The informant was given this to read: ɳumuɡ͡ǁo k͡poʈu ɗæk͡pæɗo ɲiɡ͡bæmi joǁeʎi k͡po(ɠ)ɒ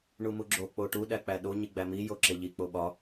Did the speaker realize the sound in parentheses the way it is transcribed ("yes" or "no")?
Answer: no